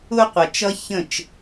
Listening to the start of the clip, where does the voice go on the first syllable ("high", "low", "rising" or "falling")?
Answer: high